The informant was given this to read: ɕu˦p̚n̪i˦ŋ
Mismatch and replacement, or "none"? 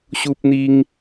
none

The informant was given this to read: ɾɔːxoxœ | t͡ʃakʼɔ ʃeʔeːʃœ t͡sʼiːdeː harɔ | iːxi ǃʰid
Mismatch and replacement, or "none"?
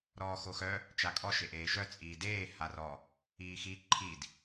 none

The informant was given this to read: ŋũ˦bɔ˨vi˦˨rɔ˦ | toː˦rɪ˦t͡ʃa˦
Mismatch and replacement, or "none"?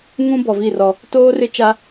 none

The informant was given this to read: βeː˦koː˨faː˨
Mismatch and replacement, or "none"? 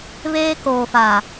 none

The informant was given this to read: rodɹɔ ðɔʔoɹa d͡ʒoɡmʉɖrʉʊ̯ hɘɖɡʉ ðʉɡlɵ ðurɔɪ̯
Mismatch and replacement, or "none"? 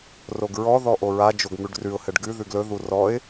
d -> ɡ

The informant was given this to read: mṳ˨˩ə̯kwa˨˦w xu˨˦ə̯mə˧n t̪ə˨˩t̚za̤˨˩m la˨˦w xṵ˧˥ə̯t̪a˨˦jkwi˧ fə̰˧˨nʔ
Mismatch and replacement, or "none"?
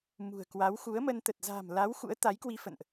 none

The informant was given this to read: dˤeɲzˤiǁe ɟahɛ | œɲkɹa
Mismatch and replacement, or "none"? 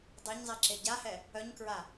none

